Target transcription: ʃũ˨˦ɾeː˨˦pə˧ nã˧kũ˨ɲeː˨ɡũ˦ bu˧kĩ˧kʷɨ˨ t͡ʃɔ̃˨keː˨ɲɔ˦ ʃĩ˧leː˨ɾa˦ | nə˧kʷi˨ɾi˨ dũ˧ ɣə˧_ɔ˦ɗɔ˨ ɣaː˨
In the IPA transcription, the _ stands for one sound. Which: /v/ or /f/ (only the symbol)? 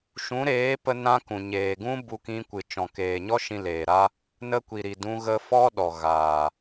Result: f